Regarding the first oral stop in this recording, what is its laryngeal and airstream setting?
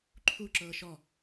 click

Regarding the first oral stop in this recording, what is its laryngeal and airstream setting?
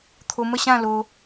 aspirated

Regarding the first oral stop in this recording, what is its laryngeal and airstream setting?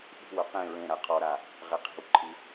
implosive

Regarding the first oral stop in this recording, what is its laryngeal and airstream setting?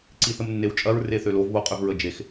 click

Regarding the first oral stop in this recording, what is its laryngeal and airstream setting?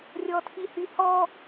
aspirated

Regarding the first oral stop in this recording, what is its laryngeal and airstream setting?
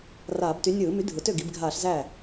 plain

